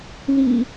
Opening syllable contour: low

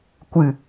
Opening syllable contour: low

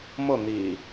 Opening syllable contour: falling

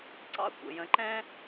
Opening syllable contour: high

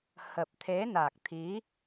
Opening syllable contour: low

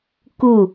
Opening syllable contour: falling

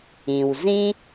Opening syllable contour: low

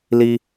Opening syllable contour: high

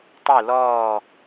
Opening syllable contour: falling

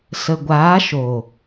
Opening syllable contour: low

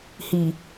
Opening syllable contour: low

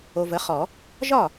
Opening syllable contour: low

